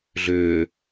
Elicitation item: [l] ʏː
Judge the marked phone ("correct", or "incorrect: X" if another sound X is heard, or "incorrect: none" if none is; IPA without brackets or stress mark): incorrect: ɮ